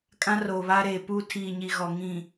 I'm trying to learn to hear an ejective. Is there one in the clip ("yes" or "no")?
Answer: yes